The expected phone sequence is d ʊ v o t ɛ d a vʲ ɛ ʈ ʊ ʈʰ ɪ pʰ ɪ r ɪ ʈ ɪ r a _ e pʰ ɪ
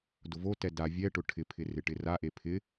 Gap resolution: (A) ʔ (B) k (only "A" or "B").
A